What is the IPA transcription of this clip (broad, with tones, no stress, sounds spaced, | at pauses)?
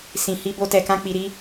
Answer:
s ĩ˨ h i˧ b o˧ t ɛ˨ k ã˧ k͡p i˨ ɾ i˧